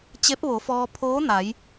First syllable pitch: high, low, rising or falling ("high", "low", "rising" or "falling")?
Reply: rising